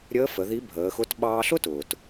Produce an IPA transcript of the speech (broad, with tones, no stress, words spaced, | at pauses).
ɾʲəː˧˥ fə˩˧ði˧˥bʱəː˩˧xʊ˧˥t ɓɑː˧ɬʊ˥tʊː˩t